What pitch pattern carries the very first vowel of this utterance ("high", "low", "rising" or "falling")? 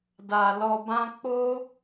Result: low